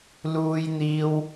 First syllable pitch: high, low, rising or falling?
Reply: high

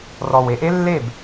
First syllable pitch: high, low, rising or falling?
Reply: low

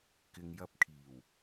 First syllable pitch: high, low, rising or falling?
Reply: low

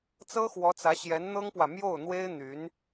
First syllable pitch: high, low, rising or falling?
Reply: high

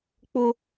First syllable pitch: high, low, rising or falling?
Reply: high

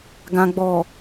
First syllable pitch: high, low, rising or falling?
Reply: low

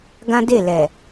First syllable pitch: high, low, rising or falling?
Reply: high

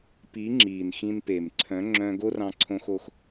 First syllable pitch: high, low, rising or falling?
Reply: rising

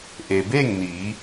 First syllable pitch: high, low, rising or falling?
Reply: low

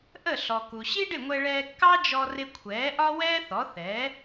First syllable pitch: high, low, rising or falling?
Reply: falling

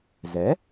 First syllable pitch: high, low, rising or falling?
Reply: rising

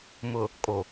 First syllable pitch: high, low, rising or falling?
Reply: low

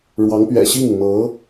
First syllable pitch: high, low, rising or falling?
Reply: rising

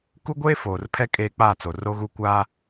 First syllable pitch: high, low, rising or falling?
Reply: high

